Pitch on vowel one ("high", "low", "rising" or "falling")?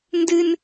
high